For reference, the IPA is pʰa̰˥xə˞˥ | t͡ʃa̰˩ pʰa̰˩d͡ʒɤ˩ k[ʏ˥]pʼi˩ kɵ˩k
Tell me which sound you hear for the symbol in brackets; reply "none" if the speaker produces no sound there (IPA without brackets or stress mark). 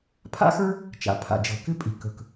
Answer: ʏ˥